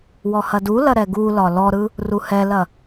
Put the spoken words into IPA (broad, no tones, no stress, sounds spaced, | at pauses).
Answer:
w ɔ h ɐ d u l ɐ ɾ ɛ ɡ u l ɒ l ɔ ɾ ɯ | r u h ɛ l ɐ